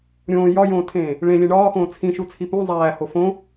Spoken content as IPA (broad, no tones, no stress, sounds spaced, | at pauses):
ɾʲ õː j ɒ j õː tʰ ẽː | ɭ ẽ lʲ ẽ ɳ ɒː x õː t͡sʰ ĩ ʃ u t͡sʰ i p ũ zˤ æː h o f õ